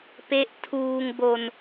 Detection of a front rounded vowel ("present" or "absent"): absent